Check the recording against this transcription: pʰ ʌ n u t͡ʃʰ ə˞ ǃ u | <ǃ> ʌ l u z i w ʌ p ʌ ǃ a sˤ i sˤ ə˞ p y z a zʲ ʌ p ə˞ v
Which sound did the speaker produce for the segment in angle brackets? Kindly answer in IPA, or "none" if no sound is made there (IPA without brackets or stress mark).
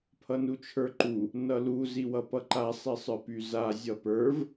n